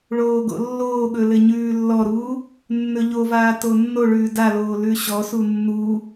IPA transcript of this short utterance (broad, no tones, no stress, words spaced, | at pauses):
ɭoːɡo̰lːoːɠɵ lɘɲʉːlːɔɾuː | nːɵʎovaː tonːoɭʉː daloː lʉɕɔsu nːu